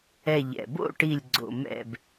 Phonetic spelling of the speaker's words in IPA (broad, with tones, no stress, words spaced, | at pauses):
ɛ˧˩ʎɛ̰˩bo̰˥˨ʈi˧˩lʲ ɡ͡ǀo̰˩mɛ̰˧˩b